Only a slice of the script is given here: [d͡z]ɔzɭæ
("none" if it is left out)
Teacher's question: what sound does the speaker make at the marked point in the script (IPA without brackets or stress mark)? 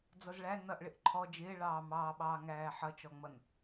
d͡z